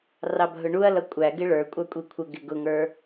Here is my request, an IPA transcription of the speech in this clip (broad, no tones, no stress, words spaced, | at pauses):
rɑbʱʊɳuɐ̯lʌ kʷʼæ ɡɪɭə˞kʷʼɑ kʷʼikʷʰəɡɪ ɡʊŋə˞